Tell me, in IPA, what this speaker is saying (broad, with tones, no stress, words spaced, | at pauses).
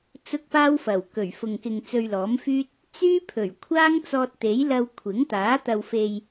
t͡sʊ˥k̚paː˥wfɐ˨˩w kɵ˨˩ɥfʊ˨ŋ kɪ˨ŋ t͡sɵ˧ɥlɔː˨˥mfyː˥t̚ | t͡syː˥pʰɵ˨˩ɥ kʷʰaː˥ŋt͡sɔː˧t̚t̪e˨˥j lɐ˧wkʷʰɪ˨˥ŋt̪aː˨˥ t̪ɐ˨wfe˨j